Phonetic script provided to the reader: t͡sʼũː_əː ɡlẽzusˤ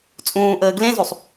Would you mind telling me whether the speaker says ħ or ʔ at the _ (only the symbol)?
ʔ